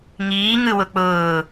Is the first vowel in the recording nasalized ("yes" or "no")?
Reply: no